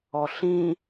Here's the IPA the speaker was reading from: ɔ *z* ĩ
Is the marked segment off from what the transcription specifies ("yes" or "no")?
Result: yes